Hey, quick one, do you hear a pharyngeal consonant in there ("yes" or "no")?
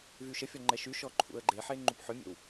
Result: yes